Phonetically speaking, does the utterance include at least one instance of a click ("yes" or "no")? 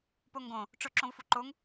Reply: yes